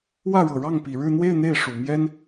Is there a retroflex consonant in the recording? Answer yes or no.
yes